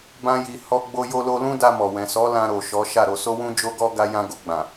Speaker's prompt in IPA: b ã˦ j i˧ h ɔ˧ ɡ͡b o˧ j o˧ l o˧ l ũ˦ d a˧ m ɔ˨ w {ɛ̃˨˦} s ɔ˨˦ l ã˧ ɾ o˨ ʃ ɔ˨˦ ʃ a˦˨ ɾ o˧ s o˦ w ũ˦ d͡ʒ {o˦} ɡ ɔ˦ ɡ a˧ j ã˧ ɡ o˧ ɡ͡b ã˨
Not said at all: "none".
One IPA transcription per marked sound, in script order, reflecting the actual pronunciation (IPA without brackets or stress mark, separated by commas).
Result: ɛ̃˨, o˦